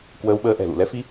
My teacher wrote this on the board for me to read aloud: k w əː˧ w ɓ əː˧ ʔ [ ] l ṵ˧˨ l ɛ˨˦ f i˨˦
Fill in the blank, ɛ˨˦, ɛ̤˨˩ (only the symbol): ɛ̤˨˩